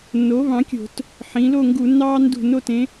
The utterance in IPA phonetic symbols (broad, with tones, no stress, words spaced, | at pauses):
nːo˩˥βɑ̃˩˥kʲo̤˧˩˧t | ħĩ˩˧lo˥˨ŋɡu˧˩˧nːɑː˦ ndṳ˧˩˧n o˩˧tẽ˩˥